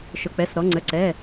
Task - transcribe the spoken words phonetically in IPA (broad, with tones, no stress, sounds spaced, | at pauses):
ʃ ʊ˩˧˩ k͡p ɛ˩˧˩ s ɾ ɔ˩˧ ŋ͡ǀ ə˩˧˩ ǀ ɛ˩˧˩